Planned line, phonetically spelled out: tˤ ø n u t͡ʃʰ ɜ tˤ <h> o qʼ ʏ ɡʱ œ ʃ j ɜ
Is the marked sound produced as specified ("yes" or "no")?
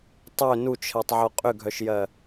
no